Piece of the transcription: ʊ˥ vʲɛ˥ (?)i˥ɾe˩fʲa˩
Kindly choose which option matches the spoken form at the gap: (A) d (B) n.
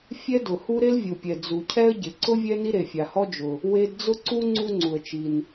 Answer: B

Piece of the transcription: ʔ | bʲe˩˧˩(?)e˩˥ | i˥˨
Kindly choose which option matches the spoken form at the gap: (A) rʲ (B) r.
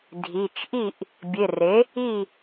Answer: B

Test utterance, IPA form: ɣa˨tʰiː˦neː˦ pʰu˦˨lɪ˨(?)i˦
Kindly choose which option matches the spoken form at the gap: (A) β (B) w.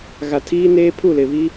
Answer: A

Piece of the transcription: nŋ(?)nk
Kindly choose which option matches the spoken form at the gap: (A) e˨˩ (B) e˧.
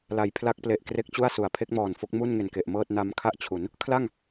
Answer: A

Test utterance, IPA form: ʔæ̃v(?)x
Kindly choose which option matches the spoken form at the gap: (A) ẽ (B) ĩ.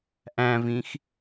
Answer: B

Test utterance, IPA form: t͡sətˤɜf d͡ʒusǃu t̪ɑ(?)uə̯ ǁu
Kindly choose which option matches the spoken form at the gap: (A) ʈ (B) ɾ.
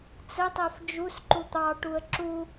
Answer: A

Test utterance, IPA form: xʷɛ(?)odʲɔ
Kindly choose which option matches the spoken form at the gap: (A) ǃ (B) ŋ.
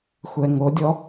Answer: B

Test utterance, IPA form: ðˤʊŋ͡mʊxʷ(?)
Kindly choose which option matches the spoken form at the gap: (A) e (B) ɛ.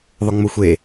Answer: A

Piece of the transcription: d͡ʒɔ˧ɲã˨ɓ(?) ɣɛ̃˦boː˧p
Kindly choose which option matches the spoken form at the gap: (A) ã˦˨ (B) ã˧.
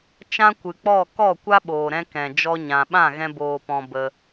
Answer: A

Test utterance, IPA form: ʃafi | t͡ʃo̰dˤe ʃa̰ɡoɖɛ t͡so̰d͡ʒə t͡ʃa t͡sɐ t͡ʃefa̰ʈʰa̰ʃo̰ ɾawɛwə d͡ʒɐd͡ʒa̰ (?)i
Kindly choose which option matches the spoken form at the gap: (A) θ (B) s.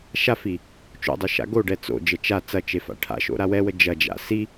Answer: B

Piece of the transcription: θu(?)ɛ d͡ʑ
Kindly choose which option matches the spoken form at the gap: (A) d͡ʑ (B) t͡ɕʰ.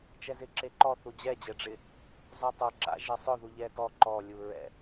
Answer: A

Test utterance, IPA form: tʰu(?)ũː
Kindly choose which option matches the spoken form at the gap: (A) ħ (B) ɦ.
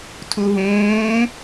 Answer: B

